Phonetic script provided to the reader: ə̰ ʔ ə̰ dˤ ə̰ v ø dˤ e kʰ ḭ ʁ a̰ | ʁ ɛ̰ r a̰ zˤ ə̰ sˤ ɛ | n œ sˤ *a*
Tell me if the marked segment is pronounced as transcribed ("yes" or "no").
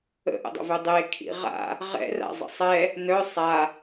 yes